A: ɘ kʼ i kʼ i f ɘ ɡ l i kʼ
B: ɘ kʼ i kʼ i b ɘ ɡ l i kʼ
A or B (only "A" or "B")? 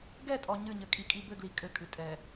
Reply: B